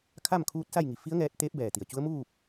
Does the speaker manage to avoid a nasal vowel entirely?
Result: yes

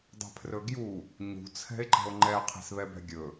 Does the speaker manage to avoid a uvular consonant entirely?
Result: no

